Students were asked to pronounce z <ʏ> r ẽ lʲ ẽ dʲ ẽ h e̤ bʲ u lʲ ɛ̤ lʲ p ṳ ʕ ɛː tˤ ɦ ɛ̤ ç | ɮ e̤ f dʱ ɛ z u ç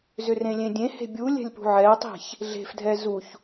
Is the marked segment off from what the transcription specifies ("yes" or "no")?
no